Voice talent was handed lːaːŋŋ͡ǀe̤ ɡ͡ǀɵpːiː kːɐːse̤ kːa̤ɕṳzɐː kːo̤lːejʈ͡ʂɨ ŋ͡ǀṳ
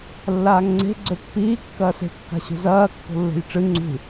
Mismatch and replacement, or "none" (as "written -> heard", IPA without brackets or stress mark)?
e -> e̤